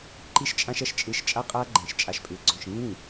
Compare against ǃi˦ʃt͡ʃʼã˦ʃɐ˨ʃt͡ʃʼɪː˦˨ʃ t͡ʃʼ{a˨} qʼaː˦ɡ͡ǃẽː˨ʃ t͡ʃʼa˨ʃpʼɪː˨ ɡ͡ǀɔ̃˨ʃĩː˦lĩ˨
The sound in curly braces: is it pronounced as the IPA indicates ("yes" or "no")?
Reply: no